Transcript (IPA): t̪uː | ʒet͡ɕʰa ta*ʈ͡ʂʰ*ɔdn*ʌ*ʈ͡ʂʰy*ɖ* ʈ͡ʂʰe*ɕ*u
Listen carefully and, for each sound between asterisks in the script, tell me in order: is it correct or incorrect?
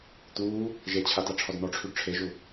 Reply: correct, incorrect: ɔ, correct, incorrect: ʒ

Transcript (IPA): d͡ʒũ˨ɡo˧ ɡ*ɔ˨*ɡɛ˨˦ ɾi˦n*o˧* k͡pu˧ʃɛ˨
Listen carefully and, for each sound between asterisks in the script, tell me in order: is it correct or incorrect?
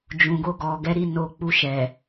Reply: correct, correct

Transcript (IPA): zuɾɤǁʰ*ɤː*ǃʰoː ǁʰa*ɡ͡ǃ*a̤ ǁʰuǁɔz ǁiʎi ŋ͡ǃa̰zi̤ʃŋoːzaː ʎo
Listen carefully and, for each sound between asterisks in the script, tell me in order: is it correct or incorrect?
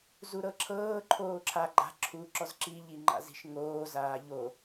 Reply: correct, correct

